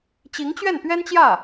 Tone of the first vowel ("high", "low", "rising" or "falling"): rising